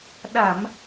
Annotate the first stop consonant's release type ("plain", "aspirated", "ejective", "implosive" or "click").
implosive